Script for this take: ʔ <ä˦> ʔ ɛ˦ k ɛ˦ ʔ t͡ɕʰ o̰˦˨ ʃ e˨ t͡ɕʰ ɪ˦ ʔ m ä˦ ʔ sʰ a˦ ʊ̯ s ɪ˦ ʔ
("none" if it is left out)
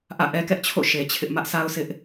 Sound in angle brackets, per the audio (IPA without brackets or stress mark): ä̰˦˨